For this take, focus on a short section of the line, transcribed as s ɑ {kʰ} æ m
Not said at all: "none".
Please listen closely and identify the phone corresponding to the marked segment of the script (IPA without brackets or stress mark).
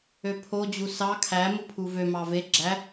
kʰ